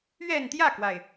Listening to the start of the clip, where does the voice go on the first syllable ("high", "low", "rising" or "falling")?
falling